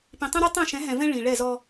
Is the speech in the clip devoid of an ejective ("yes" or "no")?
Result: yes